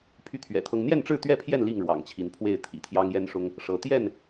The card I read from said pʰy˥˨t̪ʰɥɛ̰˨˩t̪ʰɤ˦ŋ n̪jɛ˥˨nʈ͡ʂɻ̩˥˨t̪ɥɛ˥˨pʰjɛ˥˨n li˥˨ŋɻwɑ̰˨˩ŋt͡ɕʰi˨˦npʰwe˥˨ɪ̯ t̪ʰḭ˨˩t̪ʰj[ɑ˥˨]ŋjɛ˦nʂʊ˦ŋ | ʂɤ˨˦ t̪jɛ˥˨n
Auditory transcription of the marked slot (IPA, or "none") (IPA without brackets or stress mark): ɑ˦